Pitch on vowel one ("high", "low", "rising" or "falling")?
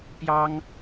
high